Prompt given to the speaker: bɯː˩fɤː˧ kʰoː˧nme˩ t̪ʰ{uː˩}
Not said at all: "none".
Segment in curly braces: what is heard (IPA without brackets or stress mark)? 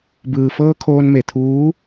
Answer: uː˧˥